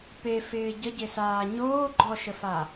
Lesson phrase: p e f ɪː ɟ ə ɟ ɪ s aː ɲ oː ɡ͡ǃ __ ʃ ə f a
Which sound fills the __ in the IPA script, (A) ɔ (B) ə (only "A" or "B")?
A